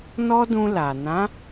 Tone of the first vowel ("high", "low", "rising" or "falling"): high